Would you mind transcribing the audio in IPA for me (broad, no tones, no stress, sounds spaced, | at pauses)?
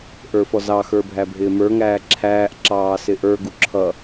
ʔ ə˞ f ɔ z ɑ x ə˞ bʱ æ bʱ ɪː m ə˞ ŋ æː ǁʰ æː ʔ ǁ ɑː s ɪ ʔ ə˞ ɡ u ǁʰ ʌ